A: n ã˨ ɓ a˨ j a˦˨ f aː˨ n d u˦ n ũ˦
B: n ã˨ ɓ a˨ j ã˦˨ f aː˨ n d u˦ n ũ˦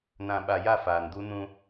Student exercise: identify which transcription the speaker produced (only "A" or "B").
A